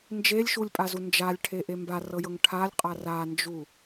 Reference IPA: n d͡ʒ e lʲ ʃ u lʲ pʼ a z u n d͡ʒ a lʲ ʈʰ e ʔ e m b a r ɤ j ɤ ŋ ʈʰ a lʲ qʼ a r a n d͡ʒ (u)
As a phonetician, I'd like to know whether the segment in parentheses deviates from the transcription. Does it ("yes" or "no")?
no